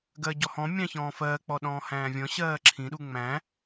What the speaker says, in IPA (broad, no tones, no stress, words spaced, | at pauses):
ɡɜɟɔhɔ̃ mʲɑ̃çɔ̃ːfɜː k͡pɔɗɔ̃ːhæ̃ːvʲɔ̃ ɕɜːǁʰĩ ɗuŋ͡mæ̃